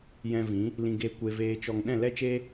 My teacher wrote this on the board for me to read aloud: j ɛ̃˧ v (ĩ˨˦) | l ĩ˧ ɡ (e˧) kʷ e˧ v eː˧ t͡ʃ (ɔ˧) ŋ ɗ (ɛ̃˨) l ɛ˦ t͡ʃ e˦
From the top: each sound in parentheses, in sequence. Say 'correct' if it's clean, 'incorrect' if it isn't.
correct, correct, correct, incorrect

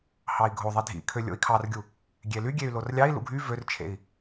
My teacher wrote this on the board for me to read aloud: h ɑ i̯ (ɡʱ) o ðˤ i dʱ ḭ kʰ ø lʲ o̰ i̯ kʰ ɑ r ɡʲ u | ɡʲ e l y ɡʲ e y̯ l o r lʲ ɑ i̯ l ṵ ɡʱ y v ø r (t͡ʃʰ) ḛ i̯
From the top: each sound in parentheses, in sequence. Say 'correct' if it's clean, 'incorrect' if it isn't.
correct, correct

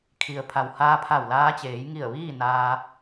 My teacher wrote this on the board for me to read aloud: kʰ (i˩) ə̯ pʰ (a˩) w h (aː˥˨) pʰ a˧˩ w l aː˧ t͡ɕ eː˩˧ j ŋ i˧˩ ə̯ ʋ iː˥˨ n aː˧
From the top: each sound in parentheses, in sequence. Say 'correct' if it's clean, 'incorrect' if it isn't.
correct, correct, incorrect

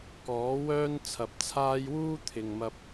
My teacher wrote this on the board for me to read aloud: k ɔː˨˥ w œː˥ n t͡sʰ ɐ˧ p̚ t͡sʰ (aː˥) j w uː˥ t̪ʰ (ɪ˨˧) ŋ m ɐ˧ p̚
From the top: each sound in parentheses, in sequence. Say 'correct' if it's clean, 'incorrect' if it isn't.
correct, incorrect

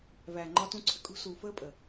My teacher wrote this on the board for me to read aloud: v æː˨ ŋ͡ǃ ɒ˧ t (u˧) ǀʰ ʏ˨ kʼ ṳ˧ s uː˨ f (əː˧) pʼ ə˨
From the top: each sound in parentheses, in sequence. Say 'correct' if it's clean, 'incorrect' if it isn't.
incorrect, correct

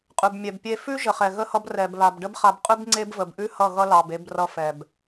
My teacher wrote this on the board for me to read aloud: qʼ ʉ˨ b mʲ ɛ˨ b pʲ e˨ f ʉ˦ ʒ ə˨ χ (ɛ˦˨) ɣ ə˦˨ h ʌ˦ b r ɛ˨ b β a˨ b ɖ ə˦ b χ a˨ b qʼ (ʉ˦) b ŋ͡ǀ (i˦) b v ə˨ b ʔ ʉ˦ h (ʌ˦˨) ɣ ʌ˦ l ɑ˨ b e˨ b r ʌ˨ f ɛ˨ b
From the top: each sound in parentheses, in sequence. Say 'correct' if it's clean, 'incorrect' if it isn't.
incorrect, correct, incorrect, correct

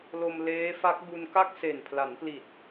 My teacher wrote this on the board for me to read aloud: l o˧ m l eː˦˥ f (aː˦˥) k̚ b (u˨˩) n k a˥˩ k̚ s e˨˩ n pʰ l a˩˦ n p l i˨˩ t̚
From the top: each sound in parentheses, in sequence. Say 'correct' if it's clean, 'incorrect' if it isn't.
incorrect, incorrect

